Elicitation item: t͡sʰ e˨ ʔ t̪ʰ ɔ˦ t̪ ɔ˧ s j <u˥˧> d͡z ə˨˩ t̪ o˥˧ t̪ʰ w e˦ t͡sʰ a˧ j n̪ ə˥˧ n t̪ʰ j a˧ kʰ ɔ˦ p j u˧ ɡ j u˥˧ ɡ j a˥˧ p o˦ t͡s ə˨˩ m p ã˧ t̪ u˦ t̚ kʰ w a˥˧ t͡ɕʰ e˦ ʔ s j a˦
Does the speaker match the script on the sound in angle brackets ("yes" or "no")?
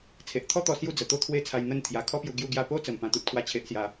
yes